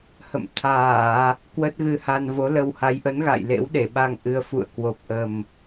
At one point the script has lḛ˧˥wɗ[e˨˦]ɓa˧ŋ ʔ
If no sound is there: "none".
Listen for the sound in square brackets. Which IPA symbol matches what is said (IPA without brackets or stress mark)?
e˧˩